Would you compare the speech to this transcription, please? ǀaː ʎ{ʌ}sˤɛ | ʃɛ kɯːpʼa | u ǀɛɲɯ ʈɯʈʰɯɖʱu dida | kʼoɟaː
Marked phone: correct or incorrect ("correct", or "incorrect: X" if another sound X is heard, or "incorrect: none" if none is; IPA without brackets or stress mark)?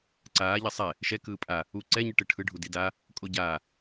correct